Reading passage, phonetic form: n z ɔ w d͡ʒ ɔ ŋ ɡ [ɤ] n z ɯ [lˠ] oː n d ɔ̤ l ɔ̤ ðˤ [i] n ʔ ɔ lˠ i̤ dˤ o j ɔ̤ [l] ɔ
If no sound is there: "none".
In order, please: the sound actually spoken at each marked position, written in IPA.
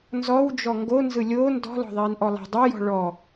o, lʲ, iː, ɭ

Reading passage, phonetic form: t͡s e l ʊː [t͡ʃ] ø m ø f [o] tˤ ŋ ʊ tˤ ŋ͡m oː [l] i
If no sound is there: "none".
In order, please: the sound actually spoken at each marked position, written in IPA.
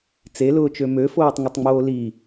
t͡ʃ, oː, l

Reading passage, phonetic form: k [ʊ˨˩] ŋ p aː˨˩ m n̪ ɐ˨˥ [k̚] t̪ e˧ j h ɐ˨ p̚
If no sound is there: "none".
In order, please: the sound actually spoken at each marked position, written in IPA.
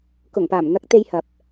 ʊ˨˩, k̚

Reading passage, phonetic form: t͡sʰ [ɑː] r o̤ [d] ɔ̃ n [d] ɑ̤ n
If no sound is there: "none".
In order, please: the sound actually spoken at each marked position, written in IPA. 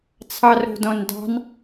ɑ, d, d

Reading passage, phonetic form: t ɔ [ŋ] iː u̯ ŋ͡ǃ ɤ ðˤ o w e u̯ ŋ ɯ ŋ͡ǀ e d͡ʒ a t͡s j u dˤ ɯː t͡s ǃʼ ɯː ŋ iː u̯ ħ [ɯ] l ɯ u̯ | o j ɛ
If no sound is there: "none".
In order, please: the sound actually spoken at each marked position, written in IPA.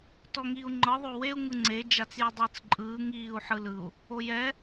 ŋ, ɯ

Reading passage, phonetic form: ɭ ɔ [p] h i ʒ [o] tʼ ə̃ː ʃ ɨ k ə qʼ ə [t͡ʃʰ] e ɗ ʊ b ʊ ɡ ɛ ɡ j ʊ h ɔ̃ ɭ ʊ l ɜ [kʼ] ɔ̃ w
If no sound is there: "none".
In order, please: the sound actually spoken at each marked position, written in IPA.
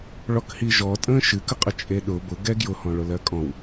k, ɔ, t͡ʃʼ, kʼ

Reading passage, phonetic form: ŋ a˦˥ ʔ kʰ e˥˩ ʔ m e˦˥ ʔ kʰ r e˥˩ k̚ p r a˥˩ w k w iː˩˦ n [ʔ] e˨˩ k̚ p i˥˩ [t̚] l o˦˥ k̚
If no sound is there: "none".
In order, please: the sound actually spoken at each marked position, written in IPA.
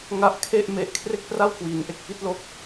ʔ, t̚

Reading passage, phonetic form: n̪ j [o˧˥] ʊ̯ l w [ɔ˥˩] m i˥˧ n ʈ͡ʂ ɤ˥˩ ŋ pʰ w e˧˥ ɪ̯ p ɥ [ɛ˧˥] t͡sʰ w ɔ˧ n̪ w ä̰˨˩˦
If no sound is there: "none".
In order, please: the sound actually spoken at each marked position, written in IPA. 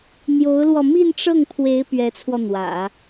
o˧˥, ɔ˧, ɛ˧˥

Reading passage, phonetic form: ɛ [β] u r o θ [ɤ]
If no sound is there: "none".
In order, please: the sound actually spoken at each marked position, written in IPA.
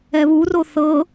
β, ɤ

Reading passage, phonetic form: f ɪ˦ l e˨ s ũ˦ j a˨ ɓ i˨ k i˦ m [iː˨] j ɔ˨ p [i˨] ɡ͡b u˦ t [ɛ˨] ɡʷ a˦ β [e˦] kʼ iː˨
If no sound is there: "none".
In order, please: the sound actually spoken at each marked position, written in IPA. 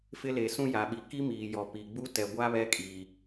iː˨, i˨, ɛ˨, ɛ˦

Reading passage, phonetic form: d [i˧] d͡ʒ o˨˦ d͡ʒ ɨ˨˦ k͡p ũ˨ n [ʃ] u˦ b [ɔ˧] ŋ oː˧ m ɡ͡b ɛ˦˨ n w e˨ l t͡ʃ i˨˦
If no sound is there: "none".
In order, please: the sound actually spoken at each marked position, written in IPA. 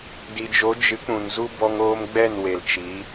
i˨, z, ɔ˧

